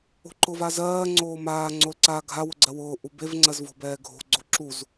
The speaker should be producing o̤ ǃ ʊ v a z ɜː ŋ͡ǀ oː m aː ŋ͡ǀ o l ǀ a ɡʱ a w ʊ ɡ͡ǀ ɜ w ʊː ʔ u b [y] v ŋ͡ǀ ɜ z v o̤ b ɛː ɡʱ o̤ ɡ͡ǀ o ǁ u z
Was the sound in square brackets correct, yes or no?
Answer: no